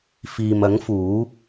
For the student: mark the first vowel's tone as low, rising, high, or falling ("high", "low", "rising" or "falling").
low